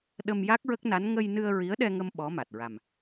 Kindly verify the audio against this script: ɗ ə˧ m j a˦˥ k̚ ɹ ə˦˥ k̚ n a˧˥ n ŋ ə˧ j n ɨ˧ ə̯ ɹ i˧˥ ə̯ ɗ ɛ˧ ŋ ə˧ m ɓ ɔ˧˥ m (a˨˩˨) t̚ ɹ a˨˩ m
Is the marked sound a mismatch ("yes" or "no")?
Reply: yes